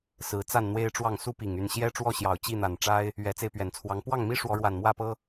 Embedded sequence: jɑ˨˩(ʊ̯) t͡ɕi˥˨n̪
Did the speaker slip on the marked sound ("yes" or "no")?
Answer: no